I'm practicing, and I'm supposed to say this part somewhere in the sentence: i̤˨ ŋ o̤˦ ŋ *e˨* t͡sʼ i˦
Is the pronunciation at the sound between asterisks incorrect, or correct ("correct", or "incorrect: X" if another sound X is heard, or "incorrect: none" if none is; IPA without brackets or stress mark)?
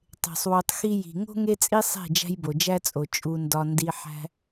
incorrect: e˦